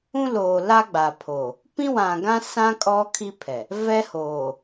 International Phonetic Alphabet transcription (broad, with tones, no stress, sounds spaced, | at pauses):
ũ˦ l oː˨ l a˦ ɡ͡b a˨ pʰ o˨ | p ĩ˦ w ã˨ ɡ ã˦ s ã˦ kʼ ɔ˦ kʰ i˦ pʰ ɛ˨ | v ɛ˦ h oː˨